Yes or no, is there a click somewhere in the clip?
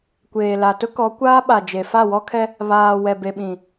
no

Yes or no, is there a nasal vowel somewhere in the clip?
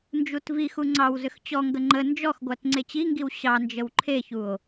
no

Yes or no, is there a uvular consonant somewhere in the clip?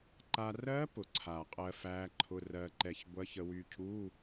yes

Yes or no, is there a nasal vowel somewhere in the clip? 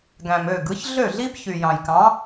yes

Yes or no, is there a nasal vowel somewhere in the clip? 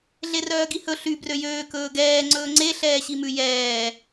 no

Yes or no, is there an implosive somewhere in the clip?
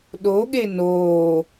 yes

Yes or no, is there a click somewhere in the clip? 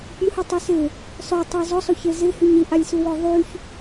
no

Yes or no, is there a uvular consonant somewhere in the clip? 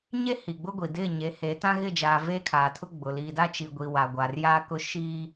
no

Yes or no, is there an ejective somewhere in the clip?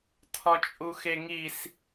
yes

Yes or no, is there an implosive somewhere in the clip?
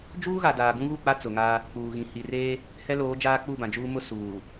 no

